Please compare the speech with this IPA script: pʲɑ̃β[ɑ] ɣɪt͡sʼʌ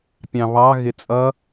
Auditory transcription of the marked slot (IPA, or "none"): ɑ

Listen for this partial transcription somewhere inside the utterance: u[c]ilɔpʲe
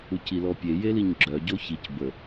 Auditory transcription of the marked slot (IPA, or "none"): c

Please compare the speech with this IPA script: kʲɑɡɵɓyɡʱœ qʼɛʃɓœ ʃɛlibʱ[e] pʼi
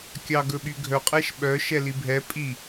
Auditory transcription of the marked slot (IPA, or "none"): ɛ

